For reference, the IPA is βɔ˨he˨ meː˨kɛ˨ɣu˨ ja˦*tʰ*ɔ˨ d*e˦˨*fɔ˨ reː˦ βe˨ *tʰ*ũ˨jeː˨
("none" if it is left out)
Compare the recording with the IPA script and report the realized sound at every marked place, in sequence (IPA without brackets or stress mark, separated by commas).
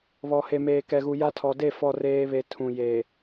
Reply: tʰ, e˦˨, tʰ